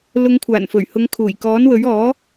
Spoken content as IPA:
l ʊ˨˧ ŋ kʷʰ aː˨˩ n f ɵ˨˩ ɥ h ʊ˨˧ ŋ kʰ uː˨˩ j k ɔː˨˥ n w ɵ˨˥ ɥ ɔː˨˥

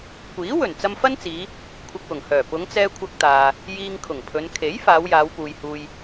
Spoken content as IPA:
kʷ iː˨˥ w ɵ˨˩ n t͡s ɐ˧ m f ɐ˥ n t͡s iː˨˧ | kʷʰ ɐ˧ k̚ w ʊ˨˩ ŋ h œː˨˩ p ʊ˨˧ ŋ t͡s ɛː˧ kʷʰ ɐ˧ k̚ t̪ aː˨ | j iː˧ ŋ kʰ ʊ˨˩ ŋ pʰ ɵ˨˧ n kʰ e˨˥ j f aː˨˧ w j aː˨˧ w p uː˨ j h uː˧ j

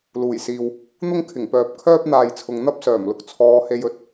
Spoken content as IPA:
l uː˨˩ j s iː˨ w | n̪ ʊ˥ ŋ kʰ ɪ˨˩ ŋ p œː˨ p̚ kʰ œː˥ p̚ n̪ aː˨ j t͡sʰ ʊ˨ ŋ n̪ ɐ˥ p̚ s œː˨˩ m l ʊ˨ k̚ t͡sʰ ɔː˨˧ h e˧ j ɵ˨˥ t̚

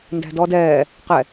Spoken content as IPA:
n d æ̤ d ɔ d ɛː | q ɛ

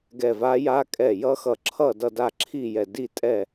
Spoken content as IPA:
ɡ ɛ˧˩ v a˦˥ j a˦˥ kʼ ɛ˧˩ j ʌ˦˥ x ʌ˧˩ ǁʰ ʌ˥˨ d ʌ˥˨ d a˥˨ ǁʰ i˥˨ j ɛ˧˩ d i˥˨ tʼ ɛ˥˨

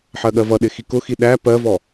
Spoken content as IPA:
ħ ɜ ɠ ɜ v ʌ ɗ ɪ x i k ʊ x i ɗ æ p ɜ v ɔ

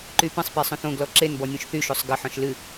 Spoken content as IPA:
ǃ y p ə̃ sˤ p e sˤ õ θ õ ɡ l ɔ ǁ e n b ɔ nʲ õ ʃ θ y ʃ o sˤ ɡ ə ħ ɔ̃ ʃ l ɨ

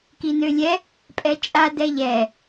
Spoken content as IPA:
k i n ø lʲ ɛ | pʼ ɛ t͡ʃʼ a d ɛ ʎ ɛ

